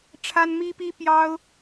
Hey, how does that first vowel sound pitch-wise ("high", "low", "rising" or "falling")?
high